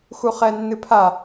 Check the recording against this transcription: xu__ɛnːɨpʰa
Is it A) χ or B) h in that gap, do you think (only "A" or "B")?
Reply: A